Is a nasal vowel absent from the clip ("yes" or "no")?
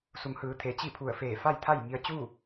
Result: yes